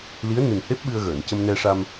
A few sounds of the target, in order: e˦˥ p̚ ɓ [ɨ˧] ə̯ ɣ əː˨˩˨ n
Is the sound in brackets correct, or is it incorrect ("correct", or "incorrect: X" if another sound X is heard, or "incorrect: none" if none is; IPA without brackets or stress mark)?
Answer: correct